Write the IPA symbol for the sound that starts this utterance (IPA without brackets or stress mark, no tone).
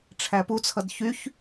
ʈ͡ʂʰ